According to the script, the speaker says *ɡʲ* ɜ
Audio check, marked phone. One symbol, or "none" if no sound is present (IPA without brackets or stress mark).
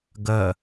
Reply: ɡ